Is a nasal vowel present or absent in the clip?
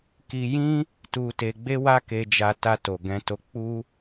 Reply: present